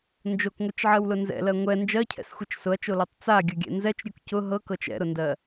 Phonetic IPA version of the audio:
n d͡ʒ o k ŋʷ i t͡ʃ ʕ ɜ w l ʊ n z ɛ̰ l ɜ ŋʷ ɛ n d͡ʒ ɜ cʰ ɛ̰ s xʷ i t͡ʃ s ʊ ɐ̯ t͡ʃ o l ɜ tˤ t͡s a ɡʲ ʊ ɡʲ ɛ̰ n z ɛ t͡ʃ ɾʲ u k c ʊ ɦ ɤ k ɤ t͡ʃ ɛ̰ ɾ ʊ n d ɜ

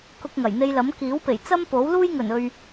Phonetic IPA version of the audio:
k ʊ˧ k̚ ŋ ɐ˨˩ j n̪ e˧ j l ɐ˨˥ m k iː˨˥ w p e˨˩ j t͡s ɐ˥ m p o˨˥ w l uː˥ j ŋ ɵ˨˩ n ɵ˨ ɥ

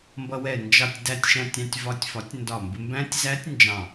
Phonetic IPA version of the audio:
m b ʌ˧ w ɛ˧˩ n d͡ʒ ɑ˧˩ tʲ d æ˥˧ tʲ ʃ æ̃˥˧ tʲ ɑ̃˥˧ tʲ v ɒ˧ tʲ f ɒ˨˥ tʲ n d ɒ˧˩ m b ɪ˧ m b æ̃˦˥ tʲ z æ˦˥ tʲ n d͡ʒ ɑ̃˧˩

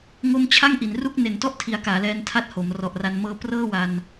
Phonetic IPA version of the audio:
ŋ o˧ m t͡ɕʰ a˥˩ ŋ ʔ i˩˦ n r u˥˩ k̚ n e˨˩ n t ɔ˥˩ ʔ tʰ i˨˩ a̯ k aː˩˦ l ɛː˧ n tʰ a˦˥ t̚ h o˩˦ m r ɔ˨˩ ʔ r a˧ n m ɤː˦˥ p r ɤː˥˩ w a˧ n

